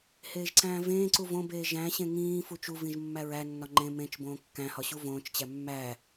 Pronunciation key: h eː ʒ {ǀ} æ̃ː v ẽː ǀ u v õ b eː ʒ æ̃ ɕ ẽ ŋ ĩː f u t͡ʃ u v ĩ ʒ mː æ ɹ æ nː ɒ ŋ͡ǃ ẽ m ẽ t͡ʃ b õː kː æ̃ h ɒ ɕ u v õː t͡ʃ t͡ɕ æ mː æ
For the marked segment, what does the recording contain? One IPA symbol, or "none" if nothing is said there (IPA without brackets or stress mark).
ǀ